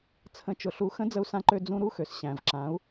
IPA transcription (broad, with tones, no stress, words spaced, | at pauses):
t͡sʰə̃˩˧t͡ʃʊ˩ɬu˩˧xə̃˧˥ d͡zə˧u̯sã˧ǃø˧ d͡zũ˧ɾu˧˥xø˩s ɕæ̃˩vǁã˩˧u̯